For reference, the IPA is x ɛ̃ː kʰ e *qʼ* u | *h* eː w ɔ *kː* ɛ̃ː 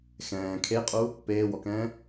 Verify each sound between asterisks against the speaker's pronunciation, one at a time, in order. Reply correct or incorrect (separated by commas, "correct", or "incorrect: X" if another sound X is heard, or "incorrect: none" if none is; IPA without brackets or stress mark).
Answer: correct, incorrect: p, incorrect: k